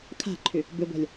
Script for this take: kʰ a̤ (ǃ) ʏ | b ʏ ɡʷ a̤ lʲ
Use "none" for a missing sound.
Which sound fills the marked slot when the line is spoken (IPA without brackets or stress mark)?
ǃʰ